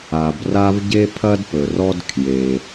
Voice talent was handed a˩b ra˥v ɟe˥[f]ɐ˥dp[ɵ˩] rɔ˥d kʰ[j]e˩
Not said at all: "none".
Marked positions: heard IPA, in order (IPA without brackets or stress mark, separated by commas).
pʰ, ɵ˩, j